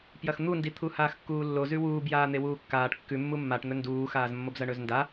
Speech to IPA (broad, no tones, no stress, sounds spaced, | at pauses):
p j ɐ x n̪ u n d i t̪ʰ u h aː x kː uː lː o z ʉ w uː b j aː n̪ e w uː kː aː ʈ kː ʉ mː u mː a ʈ n̪ ɵ n d uː x aː z mː o b z ɐ ɳ ɵ z n d a